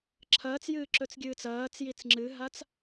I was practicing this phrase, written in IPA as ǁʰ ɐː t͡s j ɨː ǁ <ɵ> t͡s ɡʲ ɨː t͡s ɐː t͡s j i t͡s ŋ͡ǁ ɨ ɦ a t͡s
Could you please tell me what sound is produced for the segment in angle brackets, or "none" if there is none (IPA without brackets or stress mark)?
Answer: ɵ